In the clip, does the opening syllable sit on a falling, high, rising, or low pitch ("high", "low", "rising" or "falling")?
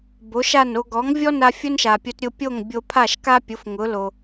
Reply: rising